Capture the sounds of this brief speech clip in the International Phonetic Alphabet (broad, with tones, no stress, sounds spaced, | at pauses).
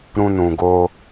ɾ ũ˧ n ũ˨ ɡ o˧